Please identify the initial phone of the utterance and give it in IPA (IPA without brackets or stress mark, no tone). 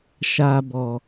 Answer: ʃ